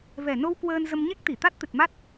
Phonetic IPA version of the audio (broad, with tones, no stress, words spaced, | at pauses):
vɛ˨˩no˧w kwəː˧nzə˧m ɲe˦˥k̚t̪i˧˩t̪a˦˥t̚ t̪ɨ˨˩t̚ma˦˥t̚